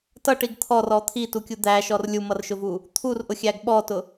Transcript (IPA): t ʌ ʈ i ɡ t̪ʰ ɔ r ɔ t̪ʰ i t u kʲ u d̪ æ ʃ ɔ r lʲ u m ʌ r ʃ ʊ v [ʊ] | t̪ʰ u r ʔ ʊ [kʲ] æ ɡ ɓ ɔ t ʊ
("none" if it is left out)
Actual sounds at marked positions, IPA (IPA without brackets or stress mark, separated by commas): u, xʲ